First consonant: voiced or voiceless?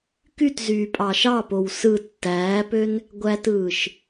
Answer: voiceless